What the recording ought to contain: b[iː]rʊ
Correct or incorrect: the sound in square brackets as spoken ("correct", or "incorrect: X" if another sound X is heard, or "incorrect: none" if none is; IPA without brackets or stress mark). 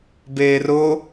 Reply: incorrect: eː